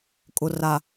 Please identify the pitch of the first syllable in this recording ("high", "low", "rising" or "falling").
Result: low